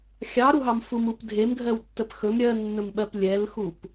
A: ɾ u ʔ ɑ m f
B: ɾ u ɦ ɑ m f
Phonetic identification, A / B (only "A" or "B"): B